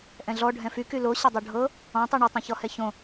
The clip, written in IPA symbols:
ʔ ɛ̃ ɮ ɔ ɖʱ ɛ̃ f y k y l o ɕ ʌ dˤ o ɖʱ ɤ | ɔ̃ tˤ y ɳ y tˤ ɛ̃ ç ɔ h ɛ ç õ

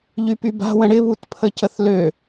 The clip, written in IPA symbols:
ʎ y p y b a̤ w ə̃ ɽ ɪ β u t pʰ ə c ə θ l ø

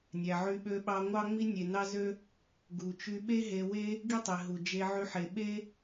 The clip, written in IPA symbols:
nʲ æ˨ ʕ y˧ ɓ ø˧ ɓ ɑ˧ ŋʷ ɑ˦ ŋ͡m i˦ nʲ e˨ n ɑ˦ z ø˦ | ɡ u˨ t͡ʃ y˧ ɓ e˦ ɦ e˧ w e˦ | ɡ i˦ tˤ i˨ ɦ u˨ d͡ʒ e˧ ʕ y˧ ħ e˨ ɓ e˦

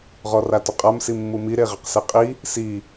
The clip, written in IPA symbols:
ʁ ɔ r a t ʊ qʼ a m s i mː u m i ɾ e ʁ e q s e qʼ i | s i

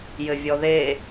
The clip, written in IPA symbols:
j ɘ vʲ ɔ ð e

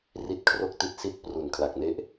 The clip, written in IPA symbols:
r i˦˥ t̚ kʰ r o˥˩ k̚ t i˦˥ t̚ s i˦˥ t̚ p r u˨˩ n kʰ l a˨˩ k̚ n e˦˥ ʔ

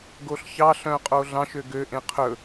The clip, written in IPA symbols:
ɡ o ɬ ç ɑ ɬ œ̃ qʼ o ɮ ɑ̃ ʃ ø ɡ ø ʔ ẽ qʰ ɵ

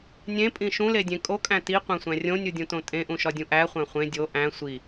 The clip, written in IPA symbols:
nʲ ẽ pʼ ĩ ʃ ũ l e dʲ ẽ kʼ o kʼ æ̃ t i qʷ æ̃ sʷ æ̃ rʲ õ nʲ u dʲ ũ t õ tʼ ẽ ʔ ũ ʃ ɒ dʲ ũ ʔ æ χʷ æ̃ χʷ ẽ dʲ o ʔ æ̃ sʷ i

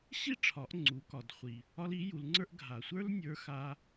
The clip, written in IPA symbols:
ɕ i˥ ʈ͡ʂʰ ɒ˩˧ ʔ ŋ͡ǀ u˩˧ k ɒ˩ d χʷ i˩ | ɒ˧ l i˩˧ j u˩˧ l ŋ͡ǀ ə˞˥ ʔ ɡʱ a˩ sʷ ə˞˥ l nʲ ə˞˧˥ x a˧

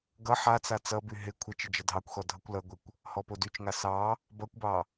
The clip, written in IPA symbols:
ɡ ʌ ħ a t͡s a t͡s ʌ b y ɦ ɪ kʷʰ ɪ t͡ʃ ɪ d͡ʒ ʌ dʱ ɑ kʷ x ɔ dʱ ʌ kʷ l ʌ ɡʷ ɪ kʷ | h ɔ p o d y t͡ʃ ŋ a s ɑ | b ʌ kʷ b ɑ

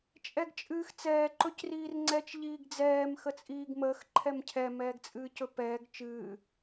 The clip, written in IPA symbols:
t͡ʃʼ ɛ ɡ t͡ʃʼ ɨː x t͡s ɛː ǃ ɵ c r iː r ŋ͡ǀ ɛ t͡ʃ ʎ iː ɡ d͡z ɛː m x ə t͡sʼ iː ɡ m əː x ǃʰ ɛ m cʰ ɛ m ɛː ɡ t͡sʼ ɨː c ɵ p ɛː ɡ t͡ʃ ɨː

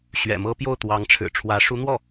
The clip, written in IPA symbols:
ɕ ɥ ɛ̰˨˩ m ɤ˥ p j o˥˩ ʊ̯ t̪ w ɑ˧˥ ŋ ʈ͡ʂʰ ɻ̩˨˩ ʈ͡ʂʰ w ä˧˥ ʂ u˧˥ n̪ w ɔ˥˩

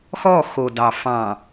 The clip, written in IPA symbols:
x ɔ˦˨ x o˨ d ɑ˨ f ɑ̃˨

